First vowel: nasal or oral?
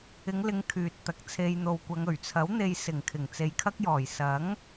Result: oral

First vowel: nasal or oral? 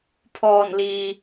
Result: oral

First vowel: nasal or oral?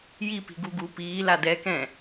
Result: oral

